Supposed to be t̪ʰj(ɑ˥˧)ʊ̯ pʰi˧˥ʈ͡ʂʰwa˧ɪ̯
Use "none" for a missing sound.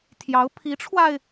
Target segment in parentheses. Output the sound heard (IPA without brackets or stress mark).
ɑ˧˥